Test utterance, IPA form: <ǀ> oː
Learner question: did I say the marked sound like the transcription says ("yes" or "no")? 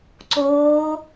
yes